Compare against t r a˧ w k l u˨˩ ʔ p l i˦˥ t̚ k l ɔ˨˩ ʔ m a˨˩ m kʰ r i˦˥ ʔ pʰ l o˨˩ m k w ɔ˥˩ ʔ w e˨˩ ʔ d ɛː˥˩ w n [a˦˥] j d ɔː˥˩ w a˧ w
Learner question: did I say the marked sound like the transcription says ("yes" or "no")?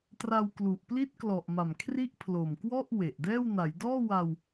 no